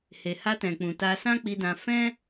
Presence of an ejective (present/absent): absent